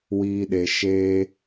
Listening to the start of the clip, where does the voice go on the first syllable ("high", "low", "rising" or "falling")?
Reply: high